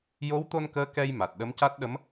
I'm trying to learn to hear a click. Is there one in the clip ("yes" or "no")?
no